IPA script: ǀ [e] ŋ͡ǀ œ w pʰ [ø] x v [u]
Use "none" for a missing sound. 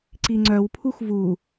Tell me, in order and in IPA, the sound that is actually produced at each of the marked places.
i, u, u

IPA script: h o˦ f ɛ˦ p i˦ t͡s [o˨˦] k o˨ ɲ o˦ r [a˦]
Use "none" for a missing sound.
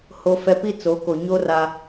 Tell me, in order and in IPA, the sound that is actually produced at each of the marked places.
o˨˦, a˦

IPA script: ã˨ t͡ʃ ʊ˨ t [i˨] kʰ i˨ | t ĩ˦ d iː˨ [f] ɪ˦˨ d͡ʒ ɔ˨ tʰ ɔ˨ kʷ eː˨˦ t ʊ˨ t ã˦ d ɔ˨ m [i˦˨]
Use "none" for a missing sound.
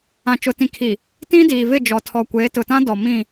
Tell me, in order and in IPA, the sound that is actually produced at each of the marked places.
ĩ˨, v, ĩ˦˨

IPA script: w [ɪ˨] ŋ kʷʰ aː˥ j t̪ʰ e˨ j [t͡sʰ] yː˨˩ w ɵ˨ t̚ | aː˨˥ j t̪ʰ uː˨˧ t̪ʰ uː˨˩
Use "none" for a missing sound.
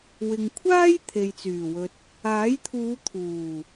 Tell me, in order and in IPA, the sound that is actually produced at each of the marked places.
ɪ˨, t͡s

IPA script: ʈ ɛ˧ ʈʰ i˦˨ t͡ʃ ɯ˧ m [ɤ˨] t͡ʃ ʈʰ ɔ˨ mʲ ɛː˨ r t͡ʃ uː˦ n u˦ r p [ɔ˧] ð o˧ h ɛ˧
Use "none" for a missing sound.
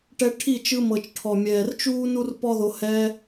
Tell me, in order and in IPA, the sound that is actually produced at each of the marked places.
ɤ˨, ɔ˦

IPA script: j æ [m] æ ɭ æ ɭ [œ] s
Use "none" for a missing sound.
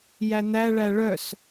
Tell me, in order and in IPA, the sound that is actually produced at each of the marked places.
n̪, œ

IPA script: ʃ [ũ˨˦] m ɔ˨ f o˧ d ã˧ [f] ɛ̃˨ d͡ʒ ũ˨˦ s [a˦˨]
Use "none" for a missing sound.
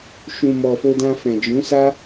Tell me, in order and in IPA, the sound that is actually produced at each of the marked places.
ũ˨, f, a˦

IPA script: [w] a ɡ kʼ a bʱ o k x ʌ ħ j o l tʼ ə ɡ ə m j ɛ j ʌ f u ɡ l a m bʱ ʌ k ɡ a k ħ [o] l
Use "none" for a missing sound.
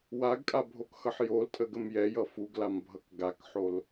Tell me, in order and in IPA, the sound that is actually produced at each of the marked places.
w, o

